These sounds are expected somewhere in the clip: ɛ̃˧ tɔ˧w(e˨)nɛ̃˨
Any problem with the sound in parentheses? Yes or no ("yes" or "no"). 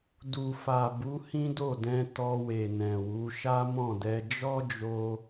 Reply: no